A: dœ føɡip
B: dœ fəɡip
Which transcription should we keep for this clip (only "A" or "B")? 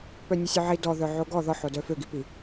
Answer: A